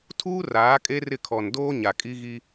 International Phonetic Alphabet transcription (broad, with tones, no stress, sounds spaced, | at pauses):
tʰ uː˦ r aː˨˦ kʼ e˦ r ɪ˦˨ kʰ ɔ˨ n d oː˦ ɲ a˨ kʼ i˦ ɣ i˦